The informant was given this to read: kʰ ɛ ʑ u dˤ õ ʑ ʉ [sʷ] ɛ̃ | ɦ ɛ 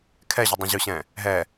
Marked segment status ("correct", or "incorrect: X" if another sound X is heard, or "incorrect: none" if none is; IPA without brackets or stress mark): incorrect: ɕ